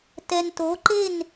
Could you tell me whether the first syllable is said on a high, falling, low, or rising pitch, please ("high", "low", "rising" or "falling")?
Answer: low